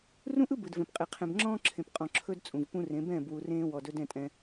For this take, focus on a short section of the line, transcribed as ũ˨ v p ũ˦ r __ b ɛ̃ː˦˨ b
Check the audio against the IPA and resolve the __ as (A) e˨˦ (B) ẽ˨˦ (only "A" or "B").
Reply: B